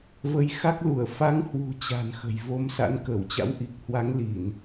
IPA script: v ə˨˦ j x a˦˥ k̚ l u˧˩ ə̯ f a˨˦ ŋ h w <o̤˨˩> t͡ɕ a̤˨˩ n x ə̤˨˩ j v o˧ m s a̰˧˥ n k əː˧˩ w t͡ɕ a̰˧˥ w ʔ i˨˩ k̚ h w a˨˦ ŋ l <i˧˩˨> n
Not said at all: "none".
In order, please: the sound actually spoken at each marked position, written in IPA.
ṳ˨˩, i˧˩˨

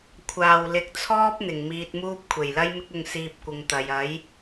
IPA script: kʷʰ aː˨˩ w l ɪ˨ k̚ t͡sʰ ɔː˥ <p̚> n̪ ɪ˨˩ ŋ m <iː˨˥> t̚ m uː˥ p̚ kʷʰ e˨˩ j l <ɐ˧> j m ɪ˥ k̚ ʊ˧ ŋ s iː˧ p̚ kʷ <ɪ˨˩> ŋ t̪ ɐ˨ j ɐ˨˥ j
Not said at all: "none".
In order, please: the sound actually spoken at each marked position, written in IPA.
p̚, iː˧, ɐ˥, ɪ˨

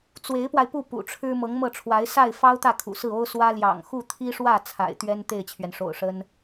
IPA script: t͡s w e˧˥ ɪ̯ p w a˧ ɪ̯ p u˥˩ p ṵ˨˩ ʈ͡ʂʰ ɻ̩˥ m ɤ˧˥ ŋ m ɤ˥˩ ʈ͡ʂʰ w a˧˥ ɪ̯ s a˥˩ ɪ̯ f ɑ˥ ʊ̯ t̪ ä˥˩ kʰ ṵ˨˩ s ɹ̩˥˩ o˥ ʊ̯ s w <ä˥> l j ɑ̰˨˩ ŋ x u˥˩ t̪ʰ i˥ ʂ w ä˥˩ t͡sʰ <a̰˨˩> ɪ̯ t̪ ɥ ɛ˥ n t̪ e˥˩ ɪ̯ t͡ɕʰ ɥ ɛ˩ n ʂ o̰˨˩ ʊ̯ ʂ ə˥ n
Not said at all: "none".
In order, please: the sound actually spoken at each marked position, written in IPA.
ä˥, a̰˨˩

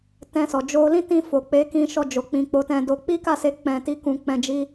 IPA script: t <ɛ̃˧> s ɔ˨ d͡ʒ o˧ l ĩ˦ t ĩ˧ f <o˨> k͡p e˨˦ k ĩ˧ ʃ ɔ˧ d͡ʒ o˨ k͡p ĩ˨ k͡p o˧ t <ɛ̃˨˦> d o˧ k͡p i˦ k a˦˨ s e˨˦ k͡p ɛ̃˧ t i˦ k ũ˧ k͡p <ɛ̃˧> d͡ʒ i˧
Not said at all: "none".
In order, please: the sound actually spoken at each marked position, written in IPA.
ɛ̃˧, o˨, ɛ̃˧, ɛ̃˧

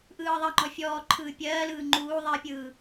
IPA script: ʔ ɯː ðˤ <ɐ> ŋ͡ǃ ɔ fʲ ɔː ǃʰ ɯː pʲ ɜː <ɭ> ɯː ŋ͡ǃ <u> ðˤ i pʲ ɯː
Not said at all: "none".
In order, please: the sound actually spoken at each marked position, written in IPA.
ə, l, uː

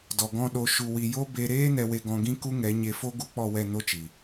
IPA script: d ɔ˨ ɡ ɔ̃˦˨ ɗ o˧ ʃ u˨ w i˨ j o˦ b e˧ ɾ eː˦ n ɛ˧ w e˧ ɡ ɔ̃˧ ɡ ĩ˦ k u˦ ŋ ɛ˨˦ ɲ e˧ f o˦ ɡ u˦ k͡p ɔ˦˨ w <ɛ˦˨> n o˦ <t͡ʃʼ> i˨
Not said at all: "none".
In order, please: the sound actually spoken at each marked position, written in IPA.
ɛ˦˨, t͡ʃ

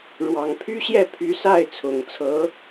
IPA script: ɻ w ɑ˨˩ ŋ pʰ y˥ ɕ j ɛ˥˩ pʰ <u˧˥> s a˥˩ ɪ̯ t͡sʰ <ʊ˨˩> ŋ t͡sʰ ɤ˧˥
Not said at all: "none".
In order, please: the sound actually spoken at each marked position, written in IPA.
y˧˥, ʊ˨˩

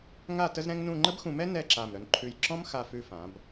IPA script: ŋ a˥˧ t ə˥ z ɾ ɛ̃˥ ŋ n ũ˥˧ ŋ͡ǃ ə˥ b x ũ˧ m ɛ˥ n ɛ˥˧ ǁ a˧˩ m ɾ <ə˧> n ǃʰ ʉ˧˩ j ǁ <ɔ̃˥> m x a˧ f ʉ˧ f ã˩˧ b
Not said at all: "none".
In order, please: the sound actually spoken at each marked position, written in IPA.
œ˧, ɔ̃˥

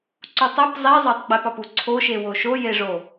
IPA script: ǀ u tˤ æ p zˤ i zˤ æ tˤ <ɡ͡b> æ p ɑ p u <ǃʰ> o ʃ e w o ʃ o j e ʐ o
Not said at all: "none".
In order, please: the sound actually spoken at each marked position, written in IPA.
ɡ͡b, ǀʰ

